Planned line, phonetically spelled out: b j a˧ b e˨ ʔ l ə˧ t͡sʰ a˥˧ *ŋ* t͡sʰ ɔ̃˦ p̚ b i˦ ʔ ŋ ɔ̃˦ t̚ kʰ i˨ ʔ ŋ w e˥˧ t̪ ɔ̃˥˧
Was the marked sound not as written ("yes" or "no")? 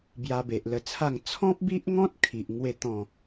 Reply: no